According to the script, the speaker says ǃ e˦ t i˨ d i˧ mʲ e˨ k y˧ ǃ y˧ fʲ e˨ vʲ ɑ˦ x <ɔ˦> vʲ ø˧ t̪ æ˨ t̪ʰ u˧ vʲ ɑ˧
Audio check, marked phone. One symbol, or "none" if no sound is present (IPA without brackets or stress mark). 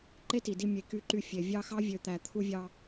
ɑ˦